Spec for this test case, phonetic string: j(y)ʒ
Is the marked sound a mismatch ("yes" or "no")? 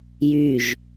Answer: no